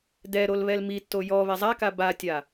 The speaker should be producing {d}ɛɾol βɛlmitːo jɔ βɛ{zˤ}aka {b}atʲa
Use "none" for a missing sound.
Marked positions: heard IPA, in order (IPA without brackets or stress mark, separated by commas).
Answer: d, zˤ, b